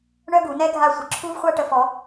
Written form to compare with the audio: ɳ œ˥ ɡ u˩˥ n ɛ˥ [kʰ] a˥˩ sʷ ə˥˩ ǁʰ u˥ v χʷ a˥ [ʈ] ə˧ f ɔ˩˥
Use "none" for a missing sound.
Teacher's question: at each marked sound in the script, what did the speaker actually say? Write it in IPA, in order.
ɡʱ, ʈ

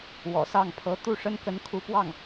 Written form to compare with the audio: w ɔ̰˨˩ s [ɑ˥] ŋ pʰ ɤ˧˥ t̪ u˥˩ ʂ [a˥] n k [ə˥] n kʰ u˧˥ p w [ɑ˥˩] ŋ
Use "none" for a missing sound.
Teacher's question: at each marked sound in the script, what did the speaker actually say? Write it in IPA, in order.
ɑ˥˩, ə˥, ə˧˥, ɑ˥˩

